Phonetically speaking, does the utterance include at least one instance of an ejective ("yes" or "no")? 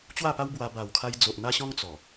no